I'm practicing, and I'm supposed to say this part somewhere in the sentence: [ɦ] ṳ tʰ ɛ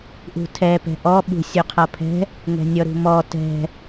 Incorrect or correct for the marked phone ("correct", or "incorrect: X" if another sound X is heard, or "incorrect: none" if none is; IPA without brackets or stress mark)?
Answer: incorrect: ʔ